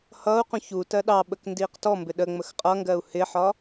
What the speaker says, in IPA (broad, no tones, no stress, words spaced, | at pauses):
hʌːu̯qũ çu tɜɗɑɓək ndiːqtɔmbɪ ɗəŋ͡məx qʼʌŋɡɜu̯ hɪħɒ